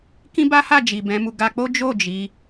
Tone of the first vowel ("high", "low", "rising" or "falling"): high